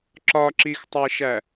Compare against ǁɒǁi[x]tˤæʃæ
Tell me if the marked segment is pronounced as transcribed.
yes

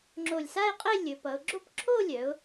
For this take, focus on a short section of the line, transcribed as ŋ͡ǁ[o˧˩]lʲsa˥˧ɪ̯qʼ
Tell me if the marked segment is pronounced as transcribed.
yes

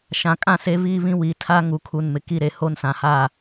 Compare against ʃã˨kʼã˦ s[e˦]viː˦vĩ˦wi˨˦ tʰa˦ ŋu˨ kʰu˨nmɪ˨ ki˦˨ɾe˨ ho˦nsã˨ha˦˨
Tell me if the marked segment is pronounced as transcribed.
yes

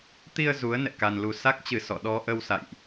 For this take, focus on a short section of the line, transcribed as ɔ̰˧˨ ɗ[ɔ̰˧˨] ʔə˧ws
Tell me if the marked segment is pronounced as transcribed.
no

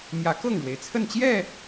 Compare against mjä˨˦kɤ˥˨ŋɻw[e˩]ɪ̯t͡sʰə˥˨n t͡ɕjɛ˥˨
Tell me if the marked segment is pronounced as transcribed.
yes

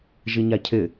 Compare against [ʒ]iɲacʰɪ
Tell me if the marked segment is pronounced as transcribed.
yes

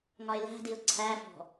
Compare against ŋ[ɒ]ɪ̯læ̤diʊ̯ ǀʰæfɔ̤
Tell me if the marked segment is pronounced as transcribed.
yes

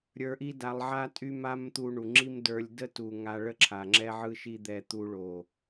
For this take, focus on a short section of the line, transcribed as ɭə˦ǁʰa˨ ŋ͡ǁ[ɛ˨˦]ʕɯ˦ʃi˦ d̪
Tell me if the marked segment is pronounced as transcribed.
no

